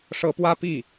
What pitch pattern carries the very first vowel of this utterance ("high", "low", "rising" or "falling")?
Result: rising